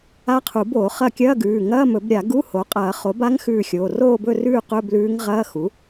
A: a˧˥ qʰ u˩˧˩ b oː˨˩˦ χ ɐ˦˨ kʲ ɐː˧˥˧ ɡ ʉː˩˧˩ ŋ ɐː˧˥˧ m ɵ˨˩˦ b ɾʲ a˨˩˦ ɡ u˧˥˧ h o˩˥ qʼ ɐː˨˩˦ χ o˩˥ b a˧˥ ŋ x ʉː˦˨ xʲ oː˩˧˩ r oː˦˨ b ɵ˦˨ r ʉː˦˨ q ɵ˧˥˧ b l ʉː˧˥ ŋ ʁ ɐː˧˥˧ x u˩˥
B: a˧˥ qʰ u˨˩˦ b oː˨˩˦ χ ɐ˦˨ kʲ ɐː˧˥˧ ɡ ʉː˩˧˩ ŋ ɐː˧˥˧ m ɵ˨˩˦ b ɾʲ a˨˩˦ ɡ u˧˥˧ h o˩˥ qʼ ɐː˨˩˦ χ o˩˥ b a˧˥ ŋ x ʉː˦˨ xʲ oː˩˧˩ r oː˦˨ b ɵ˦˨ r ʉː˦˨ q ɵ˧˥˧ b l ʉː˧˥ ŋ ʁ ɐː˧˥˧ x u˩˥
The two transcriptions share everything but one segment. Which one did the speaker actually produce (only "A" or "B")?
B